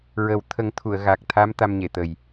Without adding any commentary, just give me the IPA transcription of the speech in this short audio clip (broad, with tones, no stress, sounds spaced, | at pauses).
ɹ ə˨˩˦ w t̪ʰ ə˨˩˦ ŋ t̪ʰ u˨˩˨ ə̯ ɣ a˨˩ k̚ t̪ʰ a˧˥ m t̪ a˧ m ɲ e˨˩˨ t̪ ə˨˩ j